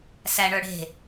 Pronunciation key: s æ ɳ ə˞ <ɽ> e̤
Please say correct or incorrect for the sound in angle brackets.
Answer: correct